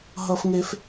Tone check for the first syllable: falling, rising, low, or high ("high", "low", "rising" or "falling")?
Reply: high